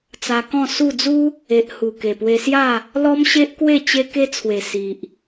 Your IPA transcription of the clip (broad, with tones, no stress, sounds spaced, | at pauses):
t͡s a˧ k ɔ̃˥˧ s u˥˧ d͡z u˦ | e˨ ʔ h u˨˩ k e˨˩ p w e˧ s j a˥˧ | l ɔ˦ m ɕ e˦ ʔ k w e˥˧ t͡ɕ e˦ k e˦ t͡sʰ w e˨˩ s i˨ ʔ